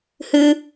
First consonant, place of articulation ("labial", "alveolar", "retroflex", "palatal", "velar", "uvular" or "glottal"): glottal